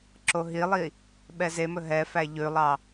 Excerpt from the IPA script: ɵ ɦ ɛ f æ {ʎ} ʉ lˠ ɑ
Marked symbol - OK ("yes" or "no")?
yes